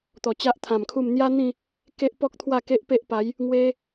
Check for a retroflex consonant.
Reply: absent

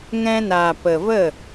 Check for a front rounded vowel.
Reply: absent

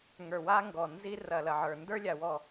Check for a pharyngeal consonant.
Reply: present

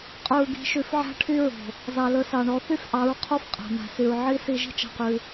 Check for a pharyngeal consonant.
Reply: present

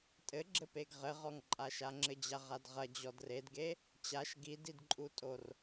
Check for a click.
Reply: present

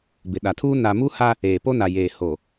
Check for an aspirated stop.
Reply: present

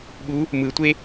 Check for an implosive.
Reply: present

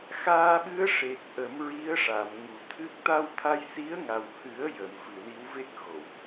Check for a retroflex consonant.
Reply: present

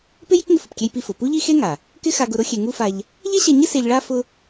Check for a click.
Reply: absent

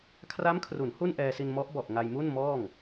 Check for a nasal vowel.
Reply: absent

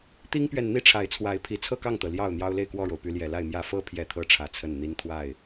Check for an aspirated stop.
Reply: present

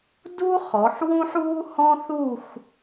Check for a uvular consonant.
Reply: present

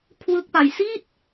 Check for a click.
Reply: absent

